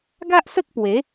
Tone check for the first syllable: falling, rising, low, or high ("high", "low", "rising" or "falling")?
high